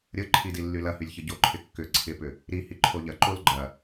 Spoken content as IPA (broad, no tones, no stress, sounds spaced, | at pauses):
ɾʲ ə ǃʰ i d i lː y l ɐ h y lʲ ç ə ɟ o ǃʰ ɪ kː ʏ ǀʰ ɪ p ʏ | ɾ i h i ǃʰ o ʎ ɐ ǃ o l ɡ͡ǃ ɐ